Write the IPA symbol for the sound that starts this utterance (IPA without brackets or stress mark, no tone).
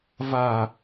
v